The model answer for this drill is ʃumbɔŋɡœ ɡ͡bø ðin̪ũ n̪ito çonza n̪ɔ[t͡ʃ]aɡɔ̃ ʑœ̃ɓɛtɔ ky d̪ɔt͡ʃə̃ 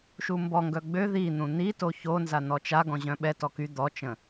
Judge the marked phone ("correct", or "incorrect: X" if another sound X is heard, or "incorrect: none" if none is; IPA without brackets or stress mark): correct